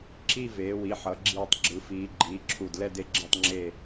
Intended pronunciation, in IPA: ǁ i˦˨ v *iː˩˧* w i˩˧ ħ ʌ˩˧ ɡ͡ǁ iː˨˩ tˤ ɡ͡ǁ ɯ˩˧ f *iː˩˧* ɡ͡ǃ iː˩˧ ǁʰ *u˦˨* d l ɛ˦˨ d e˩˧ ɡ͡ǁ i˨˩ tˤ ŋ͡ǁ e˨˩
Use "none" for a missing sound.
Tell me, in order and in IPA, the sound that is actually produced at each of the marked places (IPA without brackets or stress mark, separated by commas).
eː˩˧, iː˩˧, u˨˩